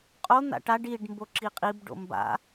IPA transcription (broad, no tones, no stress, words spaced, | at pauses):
qʼon̪a̰ ʈaɖ iɖ mboǁiqʼibɖo̰ mba̰